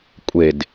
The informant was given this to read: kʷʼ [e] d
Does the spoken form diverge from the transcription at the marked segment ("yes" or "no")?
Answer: no